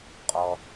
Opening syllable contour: low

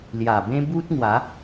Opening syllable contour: low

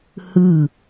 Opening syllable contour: falling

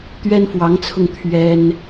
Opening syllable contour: high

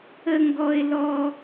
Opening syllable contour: high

